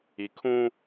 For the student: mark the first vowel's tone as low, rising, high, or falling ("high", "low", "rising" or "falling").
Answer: low